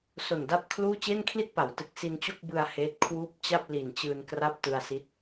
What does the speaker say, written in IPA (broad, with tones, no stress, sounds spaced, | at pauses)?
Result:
s o˨˩ n d a˥˩ p̚ kʰ l uː˥˩ t͡ɕ e˥˩ n kʰ l i˥˩ t̚ p a˩˦ w t ɯ˨˩ k̚ s i˧ n t͡ɕ o˥˩ k̚ b ɯ˧ a̯ h eː˦˥ t̚ kʰ w uː˥˩ p̚ t͡ɕ a˥˩ p̚ l i˨˩ n t͡ɕ ɯː˧ n k r a˥˩ p̚ t ɯ˧ a̯ s i˦˥ t̚